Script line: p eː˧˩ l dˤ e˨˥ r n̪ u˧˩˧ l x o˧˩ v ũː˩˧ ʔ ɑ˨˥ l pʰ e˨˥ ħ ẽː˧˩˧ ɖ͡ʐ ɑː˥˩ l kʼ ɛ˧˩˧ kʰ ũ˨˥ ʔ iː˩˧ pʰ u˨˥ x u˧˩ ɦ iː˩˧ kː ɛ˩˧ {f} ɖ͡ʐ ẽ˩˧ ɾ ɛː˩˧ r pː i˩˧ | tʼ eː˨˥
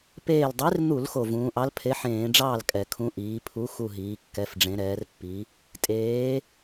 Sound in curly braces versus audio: correct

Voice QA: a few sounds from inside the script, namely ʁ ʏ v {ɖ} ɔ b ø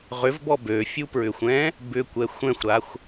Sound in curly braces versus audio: incorrect: b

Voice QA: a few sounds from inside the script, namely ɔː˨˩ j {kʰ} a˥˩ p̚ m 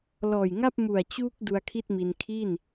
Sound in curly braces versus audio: incorrect: ŋ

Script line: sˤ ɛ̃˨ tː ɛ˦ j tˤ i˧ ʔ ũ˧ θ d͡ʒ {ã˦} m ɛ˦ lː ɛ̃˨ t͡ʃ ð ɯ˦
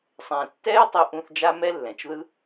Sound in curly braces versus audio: incorrect: a˦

